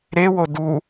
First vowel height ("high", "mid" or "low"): mid